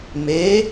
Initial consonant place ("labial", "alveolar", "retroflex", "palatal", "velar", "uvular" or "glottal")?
labial